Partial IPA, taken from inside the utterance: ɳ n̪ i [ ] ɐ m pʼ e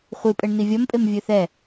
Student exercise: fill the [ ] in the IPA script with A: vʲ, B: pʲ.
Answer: A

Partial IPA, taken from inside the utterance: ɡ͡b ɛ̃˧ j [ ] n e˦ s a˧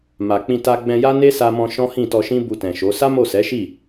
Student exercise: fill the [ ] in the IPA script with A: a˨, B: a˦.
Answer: B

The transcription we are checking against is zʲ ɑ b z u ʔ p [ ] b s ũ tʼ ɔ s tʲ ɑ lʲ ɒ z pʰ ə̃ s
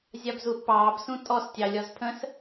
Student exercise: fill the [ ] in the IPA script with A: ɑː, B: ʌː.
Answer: A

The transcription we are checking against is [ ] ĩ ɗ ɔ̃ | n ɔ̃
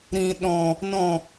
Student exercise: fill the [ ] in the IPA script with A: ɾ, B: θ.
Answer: A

